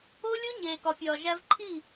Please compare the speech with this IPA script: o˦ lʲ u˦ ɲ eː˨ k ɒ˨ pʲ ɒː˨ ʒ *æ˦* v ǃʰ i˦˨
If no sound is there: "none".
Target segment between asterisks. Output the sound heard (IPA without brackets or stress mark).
æ˦